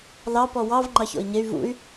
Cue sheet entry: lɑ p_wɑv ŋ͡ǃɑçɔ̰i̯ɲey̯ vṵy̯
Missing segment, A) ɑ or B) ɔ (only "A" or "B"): B